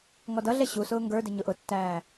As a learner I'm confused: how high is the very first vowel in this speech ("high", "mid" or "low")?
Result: mid